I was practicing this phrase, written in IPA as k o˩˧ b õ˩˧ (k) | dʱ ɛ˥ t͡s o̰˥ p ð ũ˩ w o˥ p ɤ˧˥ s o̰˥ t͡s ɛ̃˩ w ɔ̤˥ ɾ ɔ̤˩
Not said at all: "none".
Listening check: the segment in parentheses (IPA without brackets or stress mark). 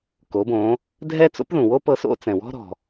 none